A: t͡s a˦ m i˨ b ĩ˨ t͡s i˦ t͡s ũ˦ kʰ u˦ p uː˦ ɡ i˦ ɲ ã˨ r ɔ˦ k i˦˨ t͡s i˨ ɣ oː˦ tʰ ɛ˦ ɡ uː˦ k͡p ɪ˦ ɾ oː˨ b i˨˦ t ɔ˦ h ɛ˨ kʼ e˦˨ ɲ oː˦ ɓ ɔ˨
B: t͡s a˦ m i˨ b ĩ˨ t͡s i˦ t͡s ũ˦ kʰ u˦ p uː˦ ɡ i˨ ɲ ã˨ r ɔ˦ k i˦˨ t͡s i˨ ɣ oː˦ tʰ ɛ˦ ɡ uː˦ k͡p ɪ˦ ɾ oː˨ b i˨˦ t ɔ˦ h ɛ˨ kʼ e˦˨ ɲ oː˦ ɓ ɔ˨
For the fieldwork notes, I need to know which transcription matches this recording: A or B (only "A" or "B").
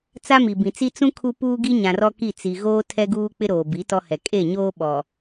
A